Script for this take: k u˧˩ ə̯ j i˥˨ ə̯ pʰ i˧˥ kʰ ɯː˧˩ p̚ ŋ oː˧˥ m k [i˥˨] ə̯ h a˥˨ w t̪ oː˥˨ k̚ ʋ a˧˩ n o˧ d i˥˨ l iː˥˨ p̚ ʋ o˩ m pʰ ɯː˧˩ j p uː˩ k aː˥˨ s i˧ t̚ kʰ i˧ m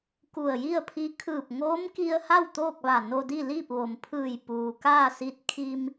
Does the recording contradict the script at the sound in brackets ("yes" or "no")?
yes